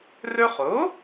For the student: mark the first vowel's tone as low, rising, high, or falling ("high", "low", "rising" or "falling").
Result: high